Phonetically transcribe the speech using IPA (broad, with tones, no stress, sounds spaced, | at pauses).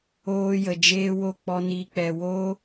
oː˦ j ə˨ d͡ʒ eː˦ w o˦˨ k͡p ɔ˧ n iː˧ k͡p ɛ˨ w o˦